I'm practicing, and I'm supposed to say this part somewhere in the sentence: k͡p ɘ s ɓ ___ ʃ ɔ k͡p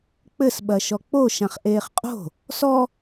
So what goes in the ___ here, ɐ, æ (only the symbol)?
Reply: ɐ